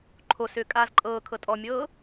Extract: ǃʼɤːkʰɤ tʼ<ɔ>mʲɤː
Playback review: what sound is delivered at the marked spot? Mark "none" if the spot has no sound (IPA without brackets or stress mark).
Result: ɔ